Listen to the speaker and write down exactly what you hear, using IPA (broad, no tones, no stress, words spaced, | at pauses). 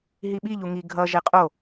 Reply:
ɦiɓi ʎuŋi ɡʱʌ ʒɛqʼo